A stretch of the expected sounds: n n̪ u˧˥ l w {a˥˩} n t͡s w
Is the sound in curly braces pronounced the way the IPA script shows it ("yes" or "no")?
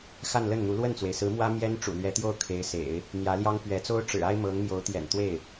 no